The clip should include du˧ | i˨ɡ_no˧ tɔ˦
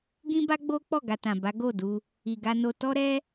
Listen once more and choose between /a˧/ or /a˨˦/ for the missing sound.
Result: a˧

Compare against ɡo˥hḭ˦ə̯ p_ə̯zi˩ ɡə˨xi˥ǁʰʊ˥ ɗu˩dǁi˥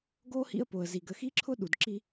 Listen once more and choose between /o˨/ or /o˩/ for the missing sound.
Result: o˩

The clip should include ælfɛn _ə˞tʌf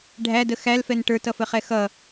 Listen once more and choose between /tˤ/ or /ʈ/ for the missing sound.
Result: ʈ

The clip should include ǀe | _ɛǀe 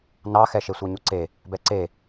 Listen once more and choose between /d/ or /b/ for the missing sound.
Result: b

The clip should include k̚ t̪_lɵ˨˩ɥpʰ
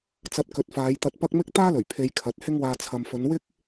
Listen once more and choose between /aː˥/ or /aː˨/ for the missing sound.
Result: aː˥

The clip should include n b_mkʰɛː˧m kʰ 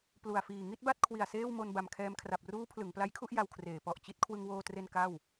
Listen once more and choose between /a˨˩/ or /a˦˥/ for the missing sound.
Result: a˨˩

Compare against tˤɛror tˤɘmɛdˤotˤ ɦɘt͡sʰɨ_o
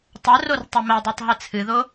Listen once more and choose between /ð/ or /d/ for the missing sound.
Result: ð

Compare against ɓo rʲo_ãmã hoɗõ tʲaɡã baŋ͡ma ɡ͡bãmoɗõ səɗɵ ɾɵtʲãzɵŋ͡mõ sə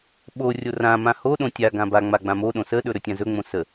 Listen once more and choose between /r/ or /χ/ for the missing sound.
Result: r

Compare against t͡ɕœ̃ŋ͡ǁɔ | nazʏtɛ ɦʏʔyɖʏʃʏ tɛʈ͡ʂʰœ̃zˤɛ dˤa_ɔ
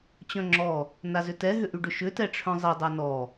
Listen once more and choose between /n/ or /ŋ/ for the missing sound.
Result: n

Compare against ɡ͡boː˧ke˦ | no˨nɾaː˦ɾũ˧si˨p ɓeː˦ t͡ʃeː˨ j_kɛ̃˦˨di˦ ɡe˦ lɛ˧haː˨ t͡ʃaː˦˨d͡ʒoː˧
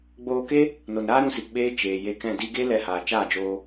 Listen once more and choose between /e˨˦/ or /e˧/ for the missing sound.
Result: e˧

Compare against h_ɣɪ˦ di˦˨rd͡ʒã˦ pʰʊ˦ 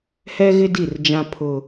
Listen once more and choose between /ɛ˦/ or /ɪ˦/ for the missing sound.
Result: ɛ˦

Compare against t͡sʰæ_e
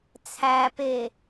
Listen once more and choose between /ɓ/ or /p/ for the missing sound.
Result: p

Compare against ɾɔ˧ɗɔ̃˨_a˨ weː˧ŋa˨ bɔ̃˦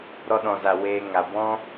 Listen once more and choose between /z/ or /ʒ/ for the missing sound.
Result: z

